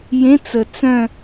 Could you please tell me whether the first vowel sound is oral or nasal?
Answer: nasal